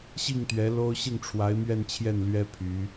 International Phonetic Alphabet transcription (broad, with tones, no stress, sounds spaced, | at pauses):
ɕ i˥˩ ŋ t̪ ɥ ɛ˧˥ l o˥ ʊ̯ ɕ i˥˩ ŋ ʈ͡ʂʰ w a˧˥ ɪ̯ m ɥ ɛ˥˧ n t͡ɕʰ j ɛ˥˩ n l ɥ ɛ˥ pʰ y˧˥